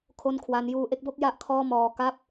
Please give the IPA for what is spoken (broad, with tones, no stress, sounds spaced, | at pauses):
kʰ o˥˩ n kʰ w a˦˥ n j uː˧ ʔ e˥˩ k̚ b o˥˩ k̚ j a˥˩ ʔ kʰ ɔː˥˩ m ɔː˧ k a˥˩ p̚